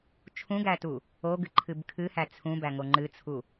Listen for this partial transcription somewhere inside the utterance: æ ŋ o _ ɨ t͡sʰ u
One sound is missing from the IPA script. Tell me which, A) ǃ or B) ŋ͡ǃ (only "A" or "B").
B